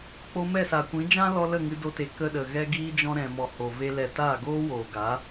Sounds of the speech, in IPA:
k͡po˧mɛ˦˨sa˨kʷĩ˨˦ d͡ʒã˦lɔ˧ lə˦˨ŋɨ˧do˧te˨ kə˧ɗə˨ ɣɛ˧ɡiː˧d͡ʒɔ̃˧ ɾɛ̃˨mɔ˨ ho˨ ve˧lɛ˨ taː˦˨ ɡoː˦woː˨ɡa˨˦

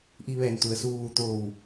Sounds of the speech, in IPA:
ʔi˧ʋɛː˧˩n t̪u˩ə̯suː˧ʋu˧ t̪oː˧˩w

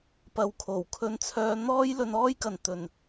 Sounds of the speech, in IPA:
pɐ˨˧wkʰo˨˩w kʰɵ˧nt͡sʰœː˧ n̪ɔː˥j lɵ˧nɔː˥jkɐ˨n t̪ɵ˨n

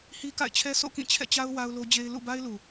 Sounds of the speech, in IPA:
hi˦ka̰˦˨ɪ̯t͡ɕʰɛ˦ sʰo̰˦˨kĩ˦˨t͡ɕʰɛ̰˦˨t͡ɕa˦ʊ̯ wa˦ʊ̯lo˦d͡ʑe˦ɪ̯ lṵ˦˨ ba˦ɪ̯lu˨

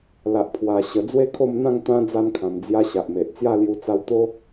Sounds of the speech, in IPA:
la˨ʔpʰwa˨˩ ɕə˨˩ d͡zwe˥˧kʰo˥˧mn̪ã˥˧ŋ t̪ã˦ d͡za˧nkʰã˨˩md͡zja˧ ɕa˨ʔme˨ʔt͡sja˥˧ lju˧t͡sa˧wt̪o˦

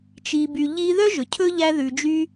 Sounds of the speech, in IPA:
t͡ʃi˩by˩ʎi˧ ðœ˥ʒɵ˩ cʰɵ˥ ʎæ˧ ðʉ˩d͡ʒy˧

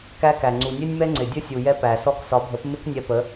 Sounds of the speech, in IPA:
kæ˦kæ˨ ŋ͡ǀu˨nʲɛ˦nʲmɛ˦ŋ͡ǀɪ˨ dʲə˦sʲu˨ jɛ˦pæ˨sɔ˦k sɒ˨˦bʱə˨˦pmɪ˦k nʲɛ˧pə˨˦

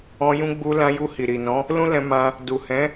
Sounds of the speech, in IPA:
ɔ̃˧jũ˧ ɡ͡bu˧lã˧ju˧ hi˨ɾi˨nɔ̃˨˦ | lũ˦lɛ̃˧mã˧ | du˨ hɛ̃˨˦

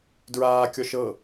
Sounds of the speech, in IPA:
dɹaːkʲɔʃ ɤ

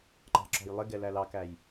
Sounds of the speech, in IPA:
ǃɑ̤ǁɔ̤jlˠɪ ɡɛlælɑkæj

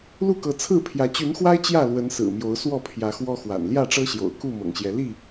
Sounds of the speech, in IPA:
lu˥˨kɤ˨˦t͡sʰɹ̩˥˨pʰjä˨˦ t͡ɕy˨˦nxwa˦ɪ̯ t͡ɕjä˥˨ lwə˨˦nsɹ̩˨˩mjo˨˦ʊ̯swɔ˥˨ pʰjä˨˦xwɔ˦xwa̰˨˩n ljä˥˨ʈ͡ʂɤ˦ɕjo̰˨˩ʊ̯ ku˥˨ mɤ̰˨˩ŋɕjɛ˨˦ li˥˨

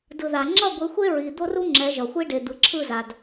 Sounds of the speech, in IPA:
dɯ˨ða˨ ŋ͡ǁʌ˦˨ɡʷi˨˦xʷe˦ ɹi˨d̪o˦ru˦ ŋ͡ǁɛ˨˦ʒʌ˨xʷi˦ ɖe˨d̪ɯ˨ǁʰɯ˦˨za˨d

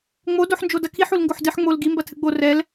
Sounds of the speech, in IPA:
ŋ͡mo doħnd͡ʒodɐkʰiħ ulŋɡoħdɨħ ŋ͡mol ɡimbɐ tʰɨɡ͡bo rɛl

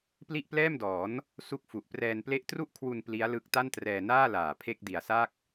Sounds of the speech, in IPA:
pli˥˩ʔplɛː˥˩mdɔː˩˦n | su˦˥k̚fu˨˩ʔprɛː˧n ple˦˥ʔtru˥˩ʔkʰwu˧n pli˦˥a̯lɯ˦˥k̚ ta˥˩ntrɛː˧ naː˥˩laː˨˩ pʰe˥˩k̚di˨˩a̯sa˥˩k̚

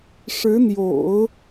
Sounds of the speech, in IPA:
ʂɻ̩˧˥n̪jo̰˨˩˦ʊ̯

